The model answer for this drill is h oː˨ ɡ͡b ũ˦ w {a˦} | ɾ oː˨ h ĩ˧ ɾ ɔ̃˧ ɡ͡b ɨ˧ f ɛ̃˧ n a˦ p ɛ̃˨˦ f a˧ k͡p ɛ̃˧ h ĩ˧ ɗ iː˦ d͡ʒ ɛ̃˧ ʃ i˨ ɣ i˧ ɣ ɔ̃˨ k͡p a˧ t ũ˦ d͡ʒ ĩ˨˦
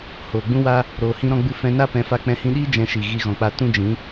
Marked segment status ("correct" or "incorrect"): correct